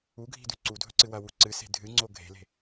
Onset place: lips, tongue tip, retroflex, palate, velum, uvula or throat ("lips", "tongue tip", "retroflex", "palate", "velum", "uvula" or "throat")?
velum